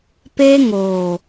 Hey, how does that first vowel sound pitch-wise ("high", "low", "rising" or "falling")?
high